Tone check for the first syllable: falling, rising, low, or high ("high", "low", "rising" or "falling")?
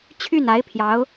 falling